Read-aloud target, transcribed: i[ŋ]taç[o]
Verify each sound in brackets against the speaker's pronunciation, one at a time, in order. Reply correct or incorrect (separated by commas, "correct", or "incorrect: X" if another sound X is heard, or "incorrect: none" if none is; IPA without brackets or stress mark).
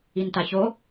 incorrect: n, correct